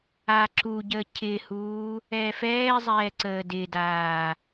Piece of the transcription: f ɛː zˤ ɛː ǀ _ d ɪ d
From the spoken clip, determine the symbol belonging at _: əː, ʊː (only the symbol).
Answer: əː